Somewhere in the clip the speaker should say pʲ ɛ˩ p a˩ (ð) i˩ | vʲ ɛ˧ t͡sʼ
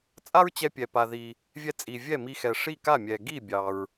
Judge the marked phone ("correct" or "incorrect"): correct